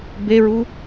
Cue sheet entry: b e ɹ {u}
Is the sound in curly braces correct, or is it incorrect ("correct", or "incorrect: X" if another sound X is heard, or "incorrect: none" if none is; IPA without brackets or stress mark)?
correct